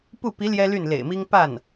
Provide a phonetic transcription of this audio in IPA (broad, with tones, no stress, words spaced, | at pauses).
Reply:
pu˥˩ pi˧˥ ljɛ˥ly˥˩n lḛ˨˩ɪ̯mi˥ŋ pa˥˩n